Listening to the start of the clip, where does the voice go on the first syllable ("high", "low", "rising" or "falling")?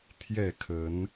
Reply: falling